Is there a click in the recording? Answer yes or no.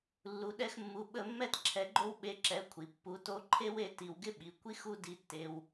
yes